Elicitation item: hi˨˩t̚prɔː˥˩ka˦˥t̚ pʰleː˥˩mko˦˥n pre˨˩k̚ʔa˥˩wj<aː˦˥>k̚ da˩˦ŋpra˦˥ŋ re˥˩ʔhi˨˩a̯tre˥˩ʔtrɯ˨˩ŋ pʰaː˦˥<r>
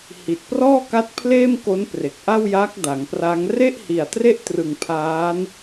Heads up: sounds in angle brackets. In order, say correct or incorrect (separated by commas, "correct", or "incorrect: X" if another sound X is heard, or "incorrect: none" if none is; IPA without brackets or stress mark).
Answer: correct, incorrect: n